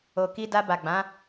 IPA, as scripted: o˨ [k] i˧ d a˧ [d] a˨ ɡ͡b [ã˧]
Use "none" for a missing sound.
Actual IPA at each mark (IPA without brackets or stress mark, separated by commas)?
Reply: k, b, ã˨˦